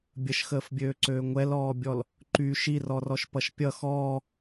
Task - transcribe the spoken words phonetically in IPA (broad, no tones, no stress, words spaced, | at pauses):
bʲəʃxəːfbʲøːǀøː ŋʷɛlɔːbʲɔl | ǃy ʃirɔrɔʃpʌʃ pʲʌ xɔː